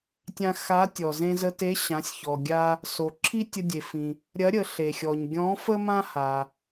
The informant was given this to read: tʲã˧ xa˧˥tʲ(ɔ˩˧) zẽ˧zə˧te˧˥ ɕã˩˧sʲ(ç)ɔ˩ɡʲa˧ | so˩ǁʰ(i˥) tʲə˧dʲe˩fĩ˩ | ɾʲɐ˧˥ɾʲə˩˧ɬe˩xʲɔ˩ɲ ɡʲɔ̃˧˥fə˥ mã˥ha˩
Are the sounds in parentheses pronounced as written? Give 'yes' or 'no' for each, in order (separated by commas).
no, yes, yes